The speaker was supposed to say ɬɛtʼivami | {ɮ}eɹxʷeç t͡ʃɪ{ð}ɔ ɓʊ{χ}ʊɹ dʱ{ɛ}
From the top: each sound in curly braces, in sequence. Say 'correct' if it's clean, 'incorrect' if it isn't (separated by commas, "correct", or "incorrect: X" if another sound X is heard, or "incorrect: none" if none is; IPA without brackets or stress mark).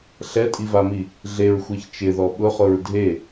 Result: correct, correct, correct, incorrect: e